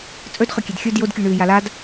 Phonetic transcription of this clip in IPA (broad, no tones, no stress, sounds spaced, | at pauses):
t͡sʼ ɵ d χ ɵ kʲ e d xʲ ɵ d j o d kʲ ʉ ɳ ʉː j a l a d